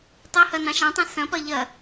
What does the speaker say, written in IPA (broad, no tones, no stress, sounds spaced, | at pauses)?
tˤ ɐ h ɐ n ɑ̃ ʃ ɑ̃ tˤ ẽ s ɐ̃ p ɐ ʎ ɐ